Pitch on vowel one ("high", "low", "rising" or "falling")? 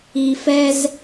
low